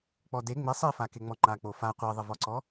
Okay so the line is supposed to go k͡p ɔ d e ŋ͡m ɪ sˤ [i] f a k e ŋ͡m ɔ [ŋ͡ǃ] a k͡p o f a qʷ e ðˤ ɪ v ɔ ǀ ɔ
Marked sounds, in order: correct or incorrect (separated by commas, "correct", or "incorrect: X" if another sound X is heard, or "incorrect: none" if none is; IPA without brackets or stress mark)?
correct, correct